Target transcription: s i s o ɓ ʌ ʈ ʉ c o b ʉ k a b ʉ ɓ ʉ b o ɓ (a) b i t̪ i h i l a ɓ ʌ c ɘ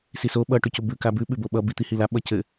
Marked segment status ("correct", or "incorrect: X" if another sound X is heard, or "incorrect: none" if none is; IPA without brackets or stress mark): incorrect: ʌ